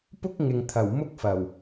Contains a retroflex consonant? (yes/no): no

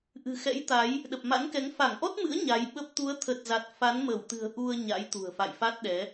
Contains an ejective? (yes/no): no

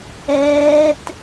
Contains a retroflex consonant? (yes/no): no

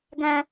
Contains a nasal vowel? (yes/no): yes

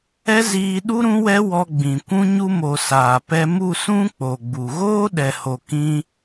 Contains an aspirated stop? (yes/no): no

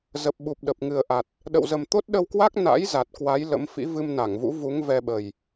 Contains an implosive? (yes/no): yes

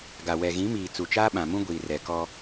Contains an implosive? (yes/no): yes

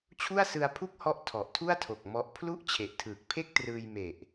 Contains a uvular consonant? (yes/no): no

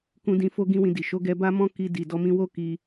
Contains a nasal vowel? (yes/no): yes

